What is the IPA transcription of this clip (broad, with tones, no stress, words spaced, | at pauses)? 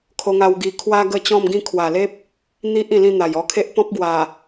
kʰo˧ŋa˧wɡi˧ kʰwa˦ ɡə˥˧t͡ɕɔ̃˥˧mɡĩ˥˧ kʰwa˨˩le˦p̚ | n̪i˦ʔ ĩ˧lĩ˥˧n̪a˨˩j ɔ˧kʰe˦ʔ pɔ̃˦p̚ɡwa˨˩